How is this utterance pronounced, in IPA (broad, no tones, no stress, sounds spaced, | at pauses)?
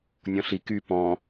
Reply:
nʲ ɔ̃ ɬ i k y p ɔ̃